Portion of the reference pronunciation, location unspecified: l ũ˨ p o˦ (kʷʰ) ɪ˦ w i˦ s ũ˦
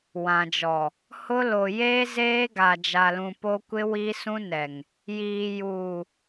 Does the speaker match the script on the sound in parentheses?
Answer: no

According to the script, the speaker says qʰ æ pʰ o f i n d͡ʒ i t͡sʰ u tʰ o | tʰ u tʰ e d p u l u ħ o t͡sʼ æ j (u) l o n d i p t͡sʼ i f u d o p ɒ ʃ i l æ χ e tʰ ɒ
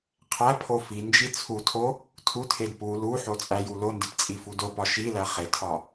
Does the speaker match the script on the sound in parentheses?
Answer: yes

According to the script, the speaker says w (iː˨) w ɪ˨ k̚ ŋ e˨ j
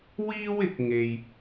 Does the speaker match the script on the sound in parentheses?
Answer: no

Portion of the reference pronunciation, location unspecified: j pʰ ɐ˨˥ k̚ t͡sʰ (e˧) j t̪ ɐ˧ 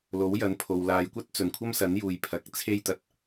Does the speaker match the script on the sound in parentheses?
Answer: no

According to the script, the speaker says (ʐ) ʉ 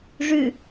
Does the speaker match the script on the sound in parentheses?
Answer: yes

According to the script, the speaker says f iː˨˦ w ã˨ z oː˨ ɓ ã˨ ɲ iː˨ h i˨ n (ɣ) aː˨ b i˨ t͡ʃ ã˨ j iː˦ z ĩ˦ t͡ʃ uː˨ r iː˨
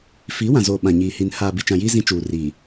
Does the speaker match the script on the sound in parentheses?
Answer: no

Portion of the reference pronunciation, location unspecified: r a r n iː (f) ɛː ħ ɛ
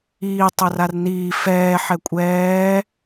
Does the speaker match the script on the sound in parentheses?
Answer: yes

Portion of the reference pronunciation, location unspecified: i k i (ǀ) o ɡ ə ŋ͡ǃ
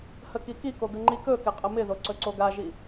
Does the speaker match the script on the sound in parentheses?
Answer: no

